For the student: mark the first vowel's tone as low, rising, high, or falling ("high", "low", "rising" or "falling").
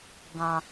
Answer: low